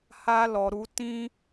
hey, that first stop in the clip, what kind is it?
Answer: plain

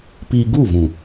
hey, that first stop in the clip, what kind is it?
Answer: plain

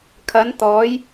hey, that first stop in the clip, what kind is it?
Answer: aspirated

